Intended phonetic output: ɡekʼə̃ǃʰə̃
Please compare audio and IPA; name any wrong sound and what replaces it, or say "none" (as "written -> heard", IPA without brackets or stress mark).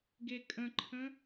none